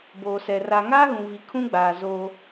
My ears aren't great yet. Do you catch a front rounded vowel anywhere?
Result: no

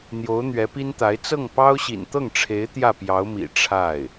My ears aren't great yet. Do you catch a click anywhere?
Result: no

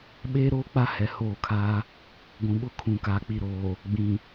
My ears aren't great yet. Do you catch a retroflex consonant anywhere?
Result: no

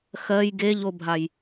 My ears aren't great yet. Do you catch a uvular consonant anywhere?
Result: no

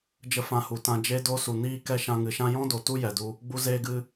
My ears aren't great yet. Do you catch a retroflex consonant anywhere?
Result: no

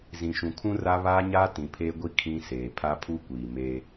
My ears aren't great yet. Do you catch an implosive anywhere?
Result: no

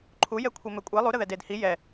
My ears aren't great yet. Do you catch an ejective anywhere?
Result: yes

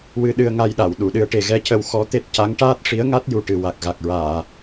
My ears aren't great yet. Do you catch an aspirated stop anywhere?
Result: no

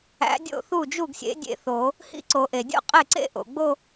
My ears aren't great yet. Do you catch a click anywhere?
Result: yes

